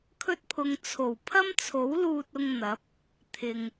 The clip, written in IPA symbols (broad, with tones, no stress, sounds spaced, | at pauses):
kʰ ɵ˥ t̚ pʰ ʊ˧ ŋ t͡sʰ o˨˩ w pʰ ɐ˥ m t͡sʰ o˨˥ w l uː˧ t̚ ʊ˧ ŋ n̪ ɐ˨˥ p̚ | t̪ʰ ɪ˨ ŋ